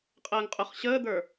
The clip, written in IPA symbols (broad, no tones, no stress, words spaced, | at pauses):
qʼəːŋqʼʊχɕəːd̪ə˞